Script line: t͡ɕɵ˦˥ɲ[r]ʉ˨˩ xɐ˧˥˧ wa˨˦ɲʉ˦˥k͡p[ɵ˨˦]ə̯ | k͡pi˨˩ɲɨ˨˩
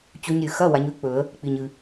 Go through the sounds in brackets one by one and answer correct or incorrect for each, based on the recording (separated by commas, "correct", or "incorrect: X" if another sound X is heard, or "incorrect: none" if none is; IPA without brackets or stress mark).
incorrect: ɾʲ, incorrect: ɵ˨˩˦